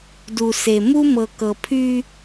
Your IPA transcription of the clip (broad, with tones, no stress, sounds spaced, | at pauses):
d u˨ s e˨ m u˦ m ɤ˨ k ɤ˨ pʰ y˦